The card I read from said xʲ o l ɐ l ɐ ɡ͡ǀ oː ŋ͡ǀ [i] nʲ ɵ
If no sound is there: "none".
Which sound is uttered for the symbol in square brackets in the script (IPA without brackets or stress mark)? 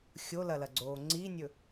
i